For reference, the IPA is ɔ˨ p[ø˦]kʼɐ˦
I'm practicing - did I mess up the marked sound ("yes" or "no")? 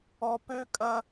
no